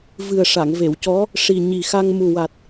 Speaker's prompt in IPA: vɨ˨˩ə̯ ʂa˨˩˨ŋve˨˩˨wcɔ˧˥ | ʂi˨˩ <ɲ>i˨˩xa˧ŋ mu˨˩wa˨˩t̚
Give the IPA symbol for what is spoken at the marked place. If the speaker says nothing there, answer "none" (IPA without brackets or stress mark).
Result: ɲ